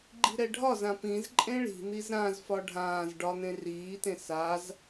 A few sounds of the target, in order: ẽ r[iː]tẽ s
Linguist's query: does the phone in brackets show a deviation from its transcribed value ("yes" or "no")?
no